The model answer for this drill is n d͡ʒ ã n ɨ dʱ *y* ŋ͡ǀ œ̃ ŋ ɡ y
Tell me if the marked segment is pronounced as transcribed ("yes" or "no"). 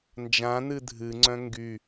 no